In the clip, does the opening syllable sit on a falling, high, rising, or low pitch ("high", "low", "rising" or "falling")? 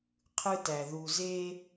high